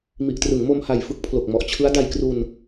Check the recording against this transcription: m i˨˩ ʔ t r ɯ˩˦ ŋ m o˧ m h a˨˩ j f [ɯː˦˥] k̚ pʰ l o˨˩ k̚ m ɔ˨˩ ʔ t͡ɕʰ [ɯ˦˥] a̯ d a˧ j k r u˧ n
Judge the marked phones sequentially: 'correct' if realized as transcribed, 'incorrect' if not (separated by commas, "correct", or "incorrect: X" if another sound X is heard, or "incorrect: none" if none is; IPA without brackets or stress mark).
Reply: incorrect: ɯ˦˥, correct